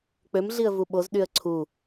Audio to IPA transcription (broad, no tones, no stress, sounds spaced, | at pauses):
k͡p ø m ɮ i ə̯ v u ɓ o z ɗ y ə̯ ǀʰ u